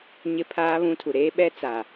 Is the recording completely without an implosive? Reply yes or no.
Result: no